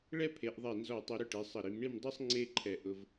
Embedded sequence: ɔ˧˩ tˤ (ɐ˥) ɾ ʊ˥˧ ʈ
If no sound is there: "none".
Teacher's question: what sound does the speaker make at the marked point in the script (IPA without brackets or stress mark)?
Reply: ɐ˧